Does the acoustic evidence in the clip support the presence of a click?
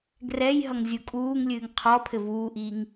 no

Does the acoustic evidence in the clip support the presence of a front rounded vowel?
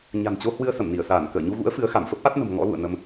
no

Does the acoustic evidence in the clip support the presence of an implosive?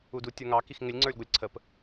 no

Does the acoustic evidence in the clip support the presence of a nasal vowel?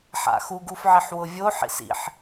no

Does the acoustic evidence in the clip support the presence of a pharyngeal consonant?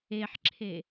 yes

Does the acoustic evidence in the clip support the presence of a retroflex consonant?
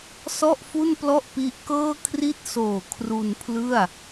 no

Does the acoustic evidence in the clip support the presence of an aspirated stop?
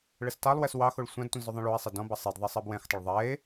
no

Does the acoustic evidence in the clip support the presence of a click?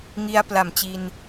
no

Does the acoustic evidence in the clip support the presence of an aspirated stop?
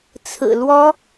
yes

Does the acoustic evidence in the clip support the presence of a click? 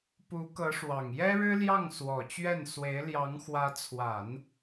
no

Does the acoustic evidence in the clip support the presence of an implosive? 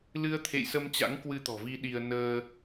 yes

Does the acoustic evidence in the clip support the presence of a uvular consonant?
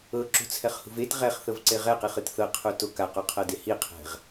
yes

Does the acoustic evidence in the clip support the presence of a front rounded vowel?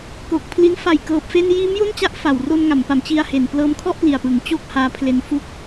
no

